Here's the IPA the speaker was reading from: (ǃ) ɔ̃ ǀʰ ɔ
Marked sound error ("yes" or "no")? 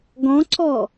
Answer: yes